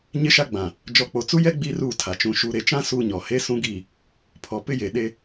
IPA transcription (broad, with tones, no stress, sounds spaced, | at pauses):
ɲ ɪ˦ ʃ a˦ ɡ͡b ã˨ | d͡ʒ ɔ˨ k͡p o˨ t͡s u˦ j ɛ˦ ɡ͡b i˦ r u˦˨ tʰ a˨ t͡ʃ ũ˨ ʃ u˨ ɾ e˨ t͡ʃ ã˦ s u˦ ɲ ɔ˨ h e˦ s ũ˦ ɡ iː˦˨ | pʰ ɔ˨ p ɪ˦ j e˨ ɗ e˦